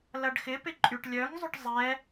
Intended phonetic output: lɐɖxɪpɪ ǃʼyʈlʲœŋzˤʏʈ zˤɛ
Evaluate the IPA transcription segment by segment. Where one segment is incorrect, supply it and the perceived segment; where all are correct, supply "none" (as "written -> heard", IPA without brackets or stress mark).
none